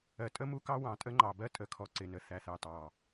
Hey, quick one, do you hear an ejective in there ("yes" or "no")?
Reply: yes